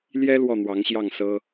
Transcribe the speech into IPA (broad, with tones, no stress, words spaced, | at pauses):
ljɛ˥ lwɔ˥˩n̪wɑ˧˥ŋɕjɑ˥˩ŋsɤ˥